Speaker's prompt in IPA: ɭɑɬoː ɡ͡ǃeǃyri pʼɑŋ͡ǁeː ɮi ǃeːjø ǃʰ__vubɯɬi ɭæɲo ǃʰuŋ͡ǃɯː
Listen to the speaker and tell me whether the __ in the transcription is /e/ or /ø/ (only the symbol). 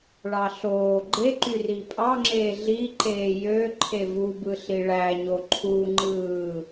e